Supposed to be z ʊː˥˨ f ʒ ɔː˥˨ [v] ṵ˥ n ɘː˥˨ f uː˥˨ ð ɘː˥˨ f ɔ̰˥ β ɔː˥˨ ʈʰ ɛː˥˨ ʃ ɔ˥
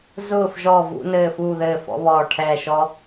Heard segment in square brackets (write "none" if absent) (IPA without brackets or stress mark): v